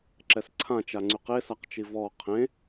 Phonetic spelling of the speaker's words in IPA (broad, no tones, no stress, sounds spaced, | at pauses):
ǁ ɛ s ǀʰ ã t͡ʃ a ŋ͡ǀ y q e s a q t͡ʃ i v ɔ qʰ ẽ